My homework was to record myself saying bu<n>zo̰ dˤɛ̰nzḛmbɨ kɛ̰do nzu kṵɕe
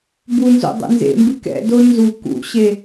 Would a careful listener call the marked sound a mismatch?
no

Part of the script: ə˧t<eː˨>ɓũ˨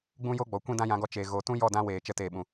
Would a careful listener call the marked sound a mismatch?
no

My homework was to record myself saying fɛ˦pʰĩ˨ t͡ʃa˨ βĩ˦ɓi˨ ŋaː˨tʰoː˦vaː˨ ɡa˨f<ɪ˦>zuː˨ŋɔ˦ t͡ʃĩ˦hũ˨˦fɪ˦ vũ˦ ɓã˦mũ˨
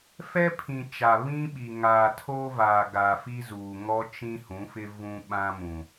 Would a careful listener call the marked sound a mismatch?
yes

